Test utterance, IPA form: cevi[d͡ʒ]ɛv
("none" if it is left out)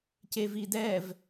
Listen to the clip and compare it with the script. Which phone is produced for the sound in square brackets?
d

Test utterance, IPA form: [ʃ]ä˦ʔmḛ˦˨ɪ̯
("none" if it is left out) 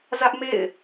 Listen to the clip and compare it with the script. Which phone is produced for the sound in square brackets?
z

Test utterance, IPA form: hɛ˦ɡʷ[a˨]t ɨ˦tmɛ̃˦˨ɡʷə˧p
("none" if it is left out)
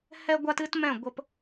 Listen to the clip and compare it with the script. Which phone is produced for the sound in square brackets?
a˦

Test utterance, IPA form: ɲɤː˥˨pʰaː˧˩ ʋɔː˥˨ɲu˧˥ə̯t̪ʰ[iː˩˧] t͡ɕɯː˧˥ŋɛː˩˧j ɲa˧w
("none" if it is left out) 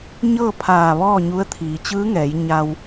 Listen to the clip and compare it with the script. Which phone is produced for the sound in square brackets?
iː˩˧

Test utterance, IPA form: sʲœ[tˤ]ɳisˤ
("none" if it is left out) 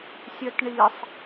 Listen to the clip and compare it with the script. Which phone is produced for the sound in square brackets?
t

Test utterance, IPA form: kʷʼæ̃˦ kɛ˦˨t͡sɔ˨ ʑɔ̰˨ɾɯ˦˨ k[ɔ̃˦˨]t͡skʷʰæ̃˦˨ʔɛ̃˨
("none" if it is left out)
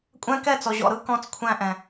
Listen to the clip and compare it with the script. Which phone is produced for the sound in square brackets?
ɔ̃˦˨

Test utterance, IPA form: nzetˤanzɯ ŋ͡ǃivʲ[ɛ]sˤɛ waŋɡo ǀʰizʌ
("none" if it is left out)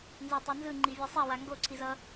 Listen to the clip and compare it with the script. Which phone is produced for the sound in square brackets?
ɛ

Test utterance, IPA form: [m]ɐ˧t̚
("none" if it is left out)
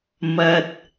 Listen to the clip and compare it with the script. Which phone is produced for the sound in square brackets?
m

